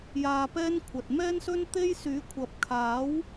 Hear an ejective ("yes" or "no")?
no